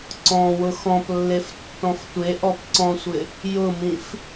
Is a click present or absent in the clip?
present